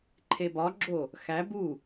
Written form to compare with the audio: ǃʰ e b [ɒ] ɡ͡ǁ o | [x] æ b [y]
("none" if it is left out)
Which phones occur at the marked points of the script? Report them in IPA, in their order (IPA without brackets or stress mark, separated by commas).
ɒ, x, u